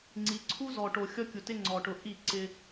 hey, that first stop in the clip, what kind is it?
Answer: click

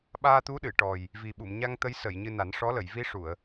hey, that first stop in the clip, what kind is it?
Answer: implosive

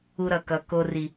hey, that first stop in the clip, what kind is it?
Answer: plain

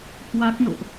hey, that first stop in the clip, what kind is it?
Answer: plain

